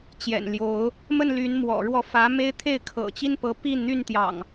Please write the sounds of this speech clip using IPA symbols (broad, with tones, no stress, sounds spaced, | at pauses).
t͡ɕ j ɛ̰˨˩ n l j o˨˦ ʊ̯ | m ə˥˨ n l y˨˦ n m w ɔ̰˨˩ ɻ w ɔ˥˨ f ä˨˦ m e˦ ɪ̯ t̪ʰ e˥˨ ɪ̯ kʰ ɤ̰˨˩ t͡ɕ i˦ n p ɤ˨˦ p i˥˨ n n̪ y˥˨ n t̪ j ɑ̰˨˩ ŋ